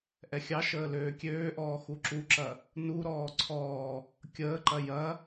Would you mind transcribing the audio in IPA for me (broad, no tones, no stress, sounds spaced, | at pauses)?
ʔ ɛ xʲ ɑ ʃ əː l øː kʲ øː ʔ ɔː x u ǁ u ǁ ɐ | n u ɾ ɔː ǀʰ ɔː | kʲ əː ǃ ɐ j ɐ